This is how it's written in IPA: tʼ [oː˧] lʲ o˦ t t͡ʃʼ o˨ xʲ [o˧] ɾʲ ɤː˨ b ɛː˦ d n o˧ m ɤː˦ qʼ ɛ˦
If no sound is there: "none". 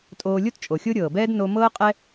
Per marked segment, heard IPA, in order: oː˧, o˦

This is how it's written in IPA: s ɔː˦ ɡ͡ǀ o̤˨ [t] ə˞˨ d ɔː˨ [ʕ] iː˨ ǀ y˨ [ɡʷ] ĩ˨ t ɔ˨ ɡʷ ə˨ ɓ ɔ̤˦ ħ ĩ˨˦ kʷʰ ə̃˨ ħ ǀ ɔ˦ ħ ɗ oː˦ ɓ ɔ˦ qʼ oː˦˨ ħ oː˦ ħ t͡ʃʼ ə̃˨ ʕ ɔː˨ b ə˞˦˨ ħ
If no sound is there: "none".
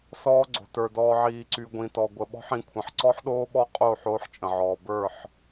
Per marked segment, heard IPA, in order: t, ʕ, ɡʷ

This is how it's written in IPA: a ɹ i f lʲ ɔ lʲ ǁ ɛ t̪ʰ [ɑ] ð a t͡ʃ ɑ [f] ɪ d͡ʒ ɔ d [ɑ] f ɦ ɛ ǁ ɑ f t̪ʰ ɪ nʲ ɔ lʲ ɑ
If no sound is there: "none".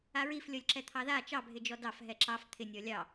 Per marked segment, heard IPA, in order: ɑ, bʱ, ɑ

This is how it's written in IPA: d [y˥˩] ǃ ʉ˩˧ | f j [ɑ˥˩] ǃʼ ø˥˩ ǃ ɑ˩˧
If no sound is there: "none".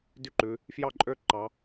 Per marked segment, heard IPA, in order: y˥˩, ɑ˥˩

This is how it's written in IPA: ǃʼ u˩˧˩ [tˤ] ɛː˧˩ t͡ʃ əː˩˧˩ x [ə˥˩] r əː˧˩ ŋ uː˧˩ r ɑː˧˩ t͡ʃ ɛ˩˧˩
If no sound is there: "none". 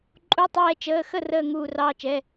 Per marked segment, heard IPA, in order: tˤ, ə˥˩

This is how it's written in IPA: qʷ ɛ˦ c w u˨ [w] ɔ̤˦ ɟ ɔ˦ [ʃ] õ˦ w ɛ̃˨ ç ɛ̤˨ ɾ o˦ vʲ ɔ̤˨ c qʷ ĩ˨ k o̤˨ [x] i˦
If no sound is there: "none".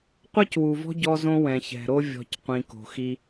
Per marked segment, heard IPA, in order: v, z, x

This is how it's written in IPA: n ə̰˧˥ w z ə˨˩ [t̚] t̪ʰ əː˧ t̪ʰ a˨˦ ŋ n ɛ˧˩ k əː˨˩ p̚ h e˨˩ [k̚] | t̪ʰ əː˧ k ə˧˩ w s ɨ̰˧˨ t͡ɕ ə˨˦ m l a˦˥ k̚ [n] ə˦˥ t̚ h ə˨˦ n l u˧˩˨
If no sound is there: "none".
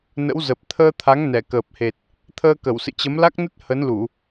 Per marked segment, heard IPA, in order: p̚, t̚, n

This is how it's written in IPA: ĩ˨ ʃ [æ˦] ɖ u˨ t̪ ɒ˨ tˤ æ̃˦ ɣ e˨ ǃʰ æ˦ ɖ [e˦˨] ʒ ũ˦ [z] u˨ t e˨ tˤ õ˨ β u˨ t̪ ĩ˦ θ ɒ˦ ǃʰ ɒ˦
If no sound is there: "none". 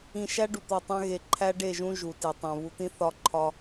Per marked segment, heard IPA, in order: æ˦, e˦˨, ʒ

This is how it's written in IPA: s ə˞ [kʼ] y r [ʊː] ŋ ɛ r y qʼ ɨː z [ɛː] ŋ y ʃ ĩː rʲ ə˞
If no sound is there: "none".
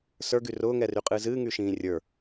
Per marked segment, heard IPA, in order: ɡ, ʊː, ɨː

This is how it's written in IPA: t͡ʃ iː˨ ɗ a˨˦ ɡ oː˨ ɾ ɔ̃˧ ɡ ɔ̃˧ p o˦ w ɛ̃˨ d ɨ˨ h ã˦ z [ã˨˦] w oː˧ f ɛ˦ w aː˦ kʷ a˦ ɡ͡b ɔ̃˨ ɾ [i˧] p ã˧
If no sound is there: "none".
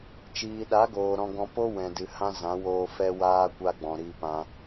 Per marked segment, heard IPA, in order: ã˨˦, i˧

